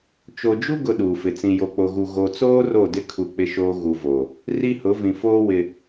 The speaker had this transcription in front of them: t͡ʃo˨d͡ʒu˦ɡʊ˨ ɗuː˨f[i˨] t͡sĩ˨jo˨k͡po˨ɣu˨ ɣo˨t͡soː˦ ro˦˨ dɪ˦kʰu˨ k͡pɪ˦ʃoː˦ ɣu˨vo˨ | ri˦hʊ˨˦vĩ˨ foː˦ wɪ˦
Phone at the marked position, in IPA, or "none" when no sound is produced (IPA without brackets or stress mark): ɪ˨